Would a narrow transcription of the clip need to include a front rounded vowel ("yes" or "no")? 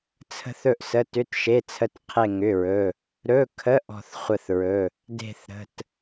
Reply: yes